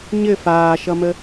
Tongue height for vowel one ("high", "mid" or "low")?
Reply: mid